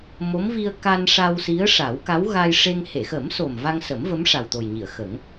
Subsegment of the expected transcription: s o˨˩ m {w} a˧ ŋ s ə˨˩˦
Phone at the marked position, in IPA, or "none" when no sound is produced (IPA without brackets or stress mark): v